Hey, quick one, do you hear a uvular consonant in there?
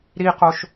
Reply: yes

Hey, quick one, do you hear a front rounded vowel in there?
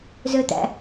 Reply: yes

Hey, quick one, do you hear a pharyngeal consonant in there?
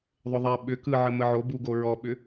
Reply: yes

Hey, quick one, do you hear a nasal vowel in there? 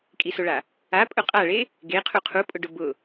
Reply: no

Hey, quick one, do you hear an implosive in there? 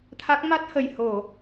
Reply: no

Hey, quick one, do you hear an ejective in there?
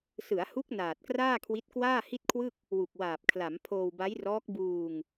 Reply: no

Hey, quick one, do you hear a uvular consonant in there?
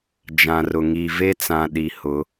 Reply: no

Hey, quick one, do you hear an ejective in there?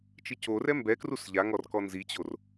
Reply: no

